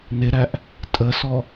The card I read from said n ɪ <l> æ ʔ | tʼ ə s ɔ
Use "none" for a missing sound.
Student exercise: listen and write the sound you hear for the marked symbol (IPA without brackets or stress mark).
ɾ